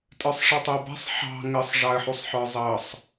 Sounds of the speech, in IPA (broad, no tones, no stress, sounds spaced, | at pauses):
tʼ ə˞ sˤ ʂ ɛ tˤ ɪ ə̯ b ɛ̤ sˤ ħ ɑ̤ ŋ ə sˤ ʐ ɑ ə̯ ħ u sˤ ħ ə˞ zˤ ʌ sˤ